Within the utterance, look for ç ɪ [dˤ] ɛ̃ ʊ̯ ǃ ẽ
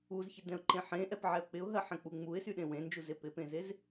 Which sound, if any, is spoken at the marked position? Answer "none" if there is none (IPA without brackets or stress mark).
d